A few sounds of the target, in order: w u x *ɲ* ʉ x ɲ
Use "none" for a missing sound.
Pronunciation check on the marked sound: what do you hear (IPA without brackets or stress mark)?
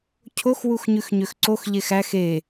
ɲ